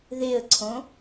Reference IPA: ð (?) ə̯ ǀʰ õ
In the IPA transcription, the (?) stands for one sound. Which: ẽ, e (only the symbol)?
e